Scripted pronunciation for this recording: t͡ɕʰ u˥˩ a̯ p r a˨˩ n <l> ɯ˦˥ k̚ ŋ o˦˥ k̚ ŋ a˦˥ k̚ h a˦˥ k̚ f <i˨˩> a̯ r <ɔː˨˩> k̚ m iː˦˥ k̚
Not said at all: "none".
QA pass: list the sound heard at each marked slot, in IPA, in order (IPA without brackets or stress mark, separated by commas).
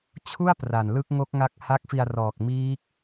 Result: l, i˧, ɔː˨˩